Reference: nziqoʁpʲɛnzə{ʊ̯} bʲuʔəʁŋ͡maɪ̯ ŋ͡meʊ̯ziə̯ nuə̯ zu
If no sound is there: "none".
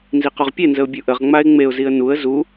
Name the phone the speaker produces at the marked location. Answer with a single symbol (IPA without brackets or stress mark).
ʊ̯